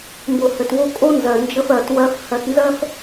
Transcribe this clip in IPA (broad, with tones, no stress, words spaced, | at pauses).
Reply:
mbo˩hɘ˩two˧ kʼo˥nzɜ˩ nd͡ʒə˧fɜ˩twɜ˧f hɜ˧tnzɜ˥f